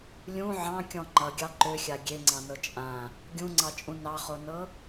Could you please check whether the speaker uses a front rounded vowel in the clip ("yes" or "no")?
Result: yes